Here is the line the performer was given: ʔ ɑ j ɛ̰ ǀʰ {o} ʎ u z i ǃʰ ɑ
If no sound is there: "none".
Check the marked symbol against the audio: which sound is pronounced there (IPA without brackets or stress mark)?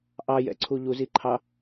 u